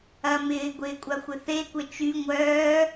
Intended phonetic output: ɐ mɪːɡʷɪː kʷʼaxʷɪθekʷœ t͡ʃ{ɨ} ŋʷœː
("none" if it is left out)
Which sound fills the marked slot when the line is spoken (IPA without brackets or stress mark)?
y